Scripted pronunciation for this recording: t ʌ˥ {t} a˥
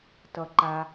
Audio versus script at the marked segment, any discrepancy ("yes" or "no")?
yes